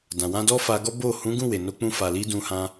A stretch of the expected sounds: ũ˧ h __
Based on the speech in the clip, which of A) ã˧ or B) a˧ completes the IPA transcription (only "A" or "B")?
A